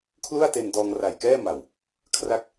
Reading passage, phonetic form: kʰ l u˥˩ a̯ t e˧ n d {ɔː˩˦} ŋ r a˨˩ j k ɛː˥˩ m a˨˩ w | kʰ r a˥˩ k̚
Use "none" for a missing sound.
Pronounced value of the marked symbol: ɔː˧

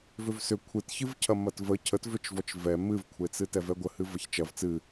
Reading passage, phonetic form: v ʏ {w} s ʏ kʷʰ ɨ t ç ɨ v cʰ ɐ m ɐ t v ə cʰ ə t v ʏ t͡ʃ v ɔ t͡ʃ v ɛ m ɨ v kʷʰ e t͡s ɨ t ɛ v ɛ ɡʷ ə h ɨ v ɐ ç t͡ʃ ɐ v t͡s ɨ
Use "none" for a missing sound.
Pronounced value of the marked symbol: v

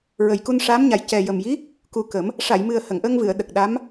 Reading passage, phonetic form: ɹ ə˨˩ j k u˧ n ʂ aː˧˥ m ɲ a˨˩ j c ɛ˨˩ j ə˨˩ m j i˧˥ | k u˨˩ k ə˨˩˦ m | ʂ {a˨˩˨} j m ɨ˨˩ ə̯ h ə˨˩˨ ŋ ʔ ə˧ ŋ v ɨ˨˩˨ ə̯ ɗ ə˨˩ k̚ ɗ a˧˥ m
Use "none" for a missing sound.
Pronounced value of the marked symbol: a˨˩˨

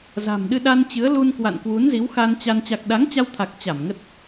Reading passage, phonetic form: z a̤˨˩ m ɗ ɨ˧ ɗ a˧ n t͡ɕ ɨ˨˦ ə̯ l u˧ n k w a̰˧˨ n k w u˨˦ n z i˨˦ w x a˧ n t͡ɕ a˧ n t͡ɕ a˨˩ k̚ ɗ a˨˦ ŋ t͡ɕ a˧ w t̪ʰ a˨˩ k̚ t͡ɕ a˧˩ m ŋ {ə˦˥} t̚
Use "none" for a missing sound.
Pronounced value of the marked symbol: ə˦˥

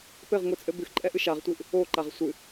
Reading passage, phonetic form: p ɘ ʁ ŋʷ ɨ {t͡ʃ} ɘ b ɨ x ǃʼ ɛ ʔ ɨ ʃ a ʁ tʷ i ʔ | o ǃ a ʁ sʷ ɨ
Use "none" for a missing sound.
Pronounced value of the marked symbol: t͡sʼ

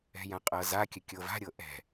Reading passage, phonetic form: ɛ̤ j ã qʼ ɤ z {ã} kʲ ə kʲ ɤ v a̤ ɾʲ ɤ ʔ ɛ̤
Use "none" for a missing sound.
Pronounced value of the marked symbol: a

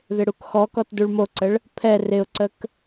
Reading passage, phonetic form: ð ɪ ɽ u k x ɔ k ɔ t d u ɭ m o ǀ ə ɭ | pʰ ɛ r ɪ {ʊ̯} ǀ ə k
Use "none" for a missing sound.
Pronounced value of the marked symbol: ʊ̯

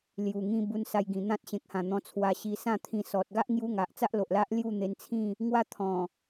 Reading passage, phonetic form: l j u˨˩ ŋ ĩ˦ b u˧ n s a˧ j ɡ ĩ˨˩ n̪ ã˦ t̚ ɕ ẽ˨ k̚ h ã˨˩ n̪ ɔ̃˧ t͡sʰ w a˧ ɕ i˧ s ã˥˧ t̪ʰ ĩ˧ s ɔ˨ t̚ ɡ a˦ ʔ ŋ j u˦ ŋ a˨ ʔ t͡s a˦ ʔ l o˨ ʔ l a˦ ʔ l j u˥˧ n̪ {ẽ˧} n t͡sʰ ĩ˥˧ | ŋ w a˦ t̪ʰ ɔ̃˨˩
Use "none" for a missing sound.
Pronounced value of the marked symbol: e˧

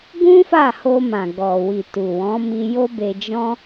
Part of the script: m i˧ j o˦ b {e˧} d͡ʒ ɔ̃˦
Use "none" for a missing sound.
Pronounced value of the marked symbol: e˧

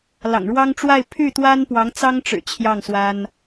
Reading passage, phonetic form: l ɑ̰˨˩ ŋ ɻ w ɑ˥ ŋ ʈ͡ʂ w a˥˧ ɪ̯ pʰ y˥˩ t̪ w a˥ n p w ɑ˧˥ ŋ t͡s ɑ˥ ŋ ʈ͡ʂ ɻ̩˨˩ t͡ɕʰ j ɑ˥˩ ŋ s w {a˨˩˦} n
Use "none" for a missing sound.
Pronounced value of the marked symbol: a˥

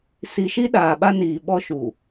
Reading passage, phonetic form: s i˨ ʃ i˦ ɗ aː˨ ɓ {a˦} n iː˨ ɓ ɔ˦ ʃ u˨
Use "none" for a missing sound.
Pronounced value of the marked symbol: a˦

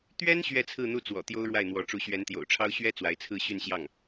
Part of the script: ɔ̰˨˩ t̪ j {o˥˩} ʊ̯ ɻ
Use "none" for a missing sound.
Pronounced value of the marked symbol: o˥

